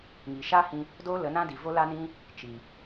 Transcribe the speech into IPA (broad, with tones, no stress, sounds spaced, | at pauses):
ŋ i˨ ʃ a˦ h ĩ˧ | d oː˦ l ə˨˦ n ã˦ d i˨ v o˦ l a˦ n ĩ˦ | t͡ʃ i˨